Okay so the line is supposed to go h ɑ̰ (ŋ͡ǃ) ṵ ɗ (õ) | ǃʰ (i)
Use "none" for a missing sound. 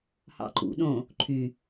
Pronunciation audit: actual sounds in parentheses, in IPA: ǃ, õ, y

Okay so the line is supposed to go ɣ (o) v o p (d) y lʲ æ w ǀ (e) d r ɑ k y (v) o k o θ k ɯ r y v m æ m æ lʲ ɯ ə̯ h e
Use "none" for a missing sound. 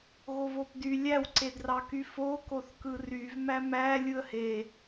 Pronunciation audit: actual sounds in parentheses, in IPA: o, d, e, f

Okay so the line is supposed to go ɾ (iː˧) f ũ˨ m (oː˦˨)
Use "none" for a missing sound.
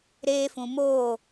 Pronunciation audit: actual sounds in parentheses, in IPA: eː˧, oː˦˨

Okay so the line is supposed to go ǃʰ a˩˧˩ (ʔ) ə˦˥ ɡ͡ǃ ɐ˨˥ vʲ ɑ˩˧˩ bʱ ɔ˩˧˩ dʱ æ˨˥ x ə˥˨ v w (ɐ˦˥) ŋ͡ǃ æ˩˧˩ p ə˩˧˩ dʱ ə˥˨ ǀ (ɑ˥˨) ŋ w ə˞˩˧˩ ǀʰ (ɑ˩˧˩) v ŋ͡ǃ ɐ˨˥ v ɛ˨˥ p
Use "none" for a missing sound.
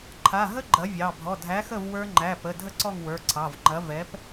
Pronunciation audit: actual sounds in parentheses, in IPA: ɦ, ə˞˦˥, ɔ˥˨, ɑ˩˧˩

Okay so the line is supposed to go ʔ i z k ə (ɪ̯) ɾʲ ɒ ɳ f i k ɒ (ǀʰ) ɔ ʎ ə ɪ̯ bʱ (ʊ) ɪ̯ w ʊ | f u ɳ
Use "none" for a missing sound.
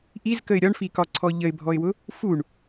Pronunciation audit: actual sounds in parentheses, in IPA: ɪ̯, ǀʰ, ɔ

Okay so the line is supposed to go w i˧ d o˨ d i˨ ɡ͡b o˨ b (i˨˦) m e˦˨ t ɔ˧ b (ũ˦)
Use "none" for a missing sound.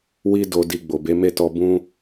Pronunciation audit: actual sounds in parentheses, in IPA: e˨˦, ũ˧

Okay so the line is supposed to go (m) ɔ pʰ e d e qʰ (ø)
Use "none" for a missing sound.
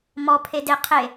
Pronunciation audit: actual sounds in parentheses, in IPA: m, e

